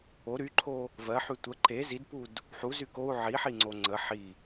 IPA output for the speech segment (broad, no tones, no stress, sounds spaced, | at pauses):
o ɾ y ǃʰ o | v ɜ ħ y tʷ ə ǃ e z i d p u d | ħ u z y k o u̯ ʕ i ħ i ŋ͡ǀ o ŋ͡ǀ ə ħ i